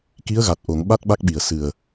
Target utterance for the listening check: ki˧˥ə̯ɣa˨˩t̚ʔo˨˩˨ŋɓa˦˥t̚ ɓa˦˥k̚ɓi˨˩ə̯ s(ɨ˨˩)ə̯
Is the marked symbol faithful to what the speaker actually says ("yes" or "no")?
yes